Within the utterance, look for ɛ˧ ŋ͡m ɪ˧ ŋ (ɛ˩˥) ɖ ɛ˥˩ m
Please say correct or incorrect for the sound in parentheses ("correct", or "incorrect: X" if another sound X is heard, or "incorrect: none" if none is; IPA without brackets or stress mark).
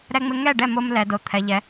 incorrect: ɛ˥˩